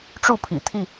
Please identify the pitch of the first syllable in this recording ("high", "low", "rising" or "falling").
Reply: falling